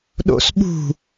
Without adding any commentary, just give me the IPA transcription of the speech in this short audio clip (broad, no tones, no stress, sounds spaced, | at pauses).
ɗ o̰ s ɓ ṳ